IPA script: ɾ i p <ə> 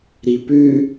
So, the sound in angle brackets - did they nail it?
no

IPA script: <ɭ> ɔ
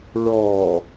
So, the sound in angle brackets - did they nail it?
yes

